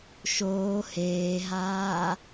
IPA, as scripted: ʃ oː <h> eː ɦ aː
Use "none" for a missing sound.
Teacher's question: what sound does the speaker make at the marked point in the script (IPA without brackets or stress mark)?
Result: h